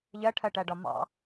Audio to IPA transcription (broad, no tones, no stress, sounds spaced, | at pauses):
ʎ ɜ ʈʰ ɜ ʈ æ ɖ ɒ m ɑ̰